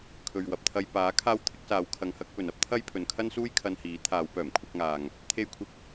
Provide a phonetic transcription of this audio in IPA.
kʰ ɵ˨ ɥ w ɐ˨ p̚ t̪ʰ ɐ˧ j p aː˨˥ kʰ aː˥ w t̪ʰ ɪ˨˥ k̚ s aː˨˧ w kʰ ɐ˧ ŋ h ɐ˥ k̚ p ɵ˨ n ɐ˥ p̚ t̪ʰ ɐ˥ j pʰ ɵ˨ n kʰ ɐ˥ n s uː˥ j kʰ ɐ˧ n h iː˨˥ t̪ʰ aː˨˧ w p œː˨˩ m kʷʰ ɐ˧ k̚ ŋ aː˨ ŋ | t̪ʰ e˧ j kʷʰ ɪ˨˥ k̚

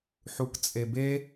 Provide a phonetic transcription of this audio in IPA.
ħ u k t͡sʼ e b e

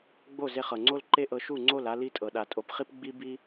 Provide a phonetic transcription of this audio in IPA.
ɡ͡b o˦˨ z e˧ χ ɤ˨ ŋ͡ǀ o˦ l ǃ e˦ ʔ ɤ˧ ʃ u˦˨ ŋ͡ǀ o˦˨ l a˦ l i˦ tʼ ɤ˨ ɗ a˨ tʼ o˨ p χ i˦ p ɡ͡b i˦ b i˦

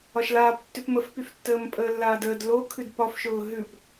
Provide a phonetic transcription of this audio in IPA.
ɒ ʃ l aː p tː ʉ p m ə f p y f tː əː m pʼ əː lː aː d əː d l o kʰ ʉ d p ɒ f ʃ ʊː ɦ ʉ p

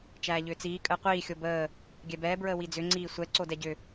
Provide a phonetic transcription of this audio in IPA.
t͡ʃ æː ʎ ʏː t͡s iː kʼ əː qʷ iː xʲ o b əː | ɡʲ ɛ b ɛː b ɹ əː w i d͡z ʏ ŋ͡ǀ iː sʷ ɛ ǀ o d ɛ ɟ ʏ

